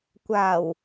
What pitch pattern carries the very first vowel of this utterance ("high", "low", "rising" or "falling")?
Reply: low